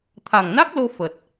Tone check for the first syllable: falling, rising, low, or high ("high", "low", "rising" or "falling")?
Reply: low